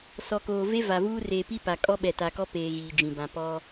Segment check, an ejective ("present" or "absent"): present